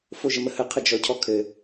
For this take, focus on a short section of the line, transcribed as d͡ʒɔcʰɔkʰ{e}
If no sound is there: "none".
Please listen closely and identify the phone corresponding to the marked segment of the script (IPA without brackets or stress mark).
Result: ɘ